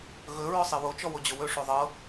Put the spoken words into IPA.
ɣɵ ɹɔsˤiwot͡ʃɔ wod͡ʑɵwɵʂo ðˤɤ

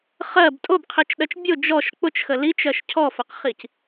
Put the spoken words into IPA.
χɜb tʼobqʰit͡ʃɗɜt͡ʃ bʲʊ d͡ʒɔʃ k͡pʊt͡ʃxə lit͡ʃɜʃ cʰɔfəqχic

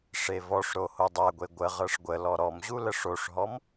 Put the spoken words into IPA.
ʂevɔʂɾo hodˤaɡʷe ɡʷə ʁɤʂɡʷəlɔ ɾɔmʑu ləʂoʂɦɔm

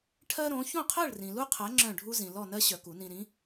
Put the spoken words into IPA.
ʈʰɜ˥ɾõ˨˥ çõ˥˨qʰɜ˥˨ɭ rĩ˨lu˥qʰɜ˨˥ ŋ͡ǁœ̃˥˨ɖʱu˥zĩ˨ lɔ˥˨nɜ˥ɕœ˨ ku˨˩˦nĩ˨ɾĩ˨˥

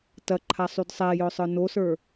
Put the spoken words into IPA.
tɐǃʰasˤyd sˤɛjœsˤə˞ nosə˞

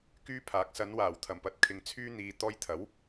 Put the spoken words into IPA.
kyː˥ pʰaː˨˥k̚sɐ˨˧nwaː˨˩w t̪ʰɐ˨˩mpɐ˨˥t̚kʰɪ˨ŋ t͡sʰyː˧ n̪iː˨ t̪ɔː˧jt̪ʰɐ˨˥w

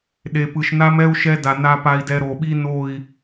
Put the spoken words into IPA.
ɗe˨pɯ˨ʃna˦mɛ˦u̯ ʃɛ˦da˨na˦ pa˨i̯dɛ˨ ɾo˨ɓi˦ no˦˨i̯

